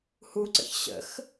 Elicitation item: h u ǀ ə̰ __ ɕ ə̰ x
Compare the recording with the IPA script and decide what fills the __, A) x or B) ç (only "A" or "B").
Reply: B